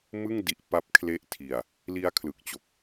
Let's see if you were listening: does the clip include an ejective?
no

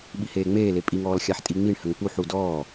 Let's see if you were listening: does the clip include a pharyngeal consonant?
yes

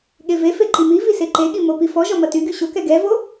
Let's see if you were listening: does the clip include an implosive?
yes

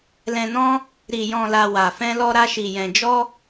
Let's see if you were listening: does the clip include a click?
no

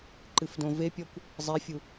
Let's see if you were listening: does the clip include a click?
yes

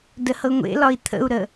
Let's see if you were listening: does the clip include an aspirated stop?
yes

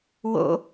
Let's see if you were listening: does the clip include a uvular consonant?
no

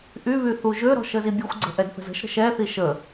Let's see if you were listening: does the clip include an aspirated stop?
no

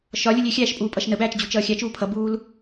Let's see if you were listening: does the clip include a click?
no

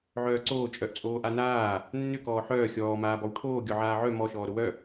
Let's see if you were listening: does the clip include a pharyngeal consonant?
yes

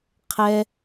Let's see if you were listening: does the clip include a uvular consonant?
yes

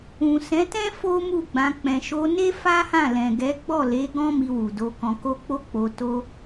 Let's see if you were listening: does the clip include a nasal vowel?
yes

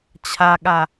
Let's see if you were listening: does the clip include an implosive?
yes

